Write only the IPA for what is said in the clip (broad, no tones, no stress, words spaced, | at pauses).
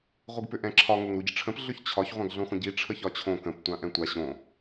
ʁʷɯɡpʏʔɛ̃ǁʰɒ ŋoŋɾuɟəʈ͡ʂʰə̃p ɮʏçt͡ɕʰɒç ʁʷãɡɮõχʷə̃ɟi ʈ͡ʂʰəçɒt͡ɕʰõ kə̃p tʷãʔɛ̃tʷa ɕõ